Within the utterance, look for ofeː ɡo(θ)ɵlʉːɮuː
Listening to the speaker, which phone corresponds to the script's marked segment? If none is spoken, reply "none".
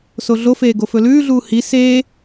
f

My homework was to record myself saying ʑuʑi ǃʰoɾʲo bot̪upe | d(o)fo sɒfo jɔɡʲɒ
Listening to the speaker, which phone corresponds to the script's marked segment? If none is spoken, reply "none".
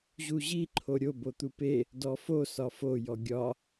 ɔ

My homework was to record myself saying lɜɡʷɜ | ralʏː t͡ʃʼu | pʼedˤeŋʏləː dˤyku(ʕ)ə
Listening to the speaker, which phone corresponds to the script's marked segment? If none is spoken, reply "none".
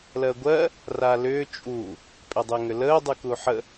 ħ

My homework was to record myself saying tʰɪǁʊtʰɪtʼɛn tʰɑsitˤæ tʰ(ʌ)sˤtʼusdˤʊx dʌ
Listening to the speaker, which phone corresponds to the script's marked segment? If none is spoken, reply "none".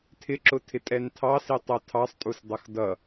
ɑ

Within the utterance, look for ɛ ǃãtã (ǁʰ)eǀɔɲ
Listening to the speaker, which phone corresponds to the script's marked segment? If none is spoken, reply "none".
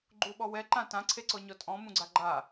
ǀʰ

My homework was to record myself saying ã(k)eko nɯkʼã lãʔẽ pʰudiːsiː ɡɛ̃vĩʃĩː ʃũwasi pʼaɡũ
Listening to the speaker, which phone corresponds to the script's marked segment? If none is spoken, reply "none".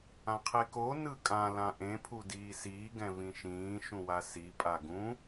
qʰ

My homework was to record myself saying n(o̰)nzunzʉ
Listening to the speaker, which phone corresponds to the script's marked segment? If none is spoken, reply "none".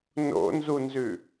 o̰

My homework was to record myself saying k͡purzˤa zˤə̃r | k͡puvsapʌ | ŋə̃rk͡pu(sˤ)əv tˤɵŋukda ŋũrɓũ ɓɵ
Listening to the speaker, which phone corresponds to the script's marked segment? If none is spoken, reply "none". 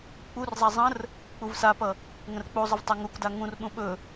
zˤ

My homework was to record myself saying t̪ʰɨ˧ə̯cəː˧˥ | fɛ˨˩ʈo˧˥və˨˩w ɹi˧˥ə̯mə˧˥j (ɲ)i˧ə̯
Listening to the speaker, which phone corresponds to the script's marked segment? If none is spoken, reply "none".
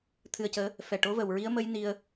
n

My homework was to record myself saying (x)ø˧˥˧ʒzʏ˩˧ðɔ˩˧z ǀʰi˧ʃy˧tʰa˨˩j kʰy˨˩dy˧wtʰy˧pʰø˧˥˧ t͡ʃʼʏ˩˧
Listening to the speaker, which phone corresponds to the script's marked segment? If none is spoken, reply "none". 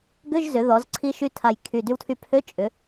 ɡ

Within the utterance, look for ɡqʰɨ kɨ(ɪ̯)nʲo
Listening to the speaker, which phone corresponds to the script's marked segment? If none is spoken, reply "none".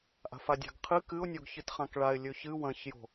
ʊ̯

